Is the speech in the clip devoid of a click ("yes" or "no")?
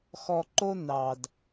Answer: no